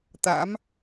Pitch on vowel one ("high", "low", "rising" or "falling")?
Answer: rising